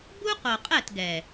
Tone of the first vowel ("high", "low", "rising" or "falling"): high